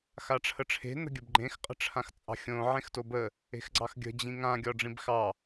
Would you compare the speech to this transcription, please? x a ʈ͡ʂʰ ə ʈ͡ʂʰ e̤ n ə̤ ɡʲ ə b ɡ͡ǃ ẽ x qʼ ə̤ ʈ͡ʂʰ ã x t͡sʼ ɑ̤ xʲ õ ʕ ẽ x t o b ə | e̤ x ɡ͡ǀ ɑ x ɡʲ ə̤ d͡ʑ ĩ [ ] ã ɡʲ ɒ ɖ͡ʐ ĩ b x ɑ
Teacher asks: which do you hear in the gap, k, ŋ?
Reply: ŋ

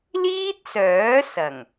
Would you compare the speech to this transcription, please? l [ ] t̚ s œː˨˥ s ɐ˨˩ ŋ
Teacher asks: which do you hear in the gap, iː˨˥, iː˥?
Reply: iː˥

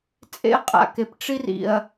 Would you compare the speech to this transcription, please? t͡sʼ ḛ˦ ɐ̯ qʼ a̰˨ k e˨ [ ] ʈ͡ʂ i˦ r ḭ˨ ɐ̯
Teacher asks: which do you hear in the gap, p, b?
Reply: p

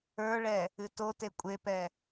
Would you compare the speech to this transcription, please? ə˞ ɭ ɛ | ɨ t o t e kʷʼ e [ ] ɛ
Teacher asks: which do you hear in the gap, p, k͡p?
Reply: p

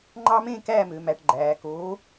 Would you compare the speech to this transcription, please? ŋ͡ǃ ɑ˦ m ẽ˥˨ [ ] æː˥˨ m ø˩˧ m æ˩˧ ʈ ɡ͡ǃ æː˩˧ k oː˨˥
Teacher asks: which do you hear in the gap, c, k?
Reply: k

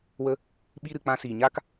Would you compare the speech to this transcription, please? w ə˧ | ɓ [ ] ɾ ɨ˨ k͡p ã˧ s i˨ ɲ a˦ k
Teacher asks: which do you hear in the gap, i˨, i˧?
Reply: i˧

